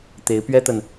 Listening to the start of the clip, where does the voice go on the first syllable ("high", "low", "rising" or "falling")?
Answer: rising